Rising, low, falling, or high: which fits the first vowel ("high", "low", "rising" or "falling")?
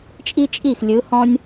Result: high